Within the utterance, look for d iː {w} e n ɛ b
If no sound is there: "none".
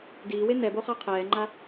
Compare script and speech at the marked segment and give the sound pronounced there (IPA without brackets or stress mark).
w